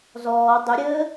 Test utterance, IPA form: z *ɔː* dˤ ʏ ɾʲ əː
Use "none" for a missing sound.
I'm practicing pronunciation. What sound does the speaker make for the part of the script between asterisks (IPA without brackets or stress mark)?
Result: ɔː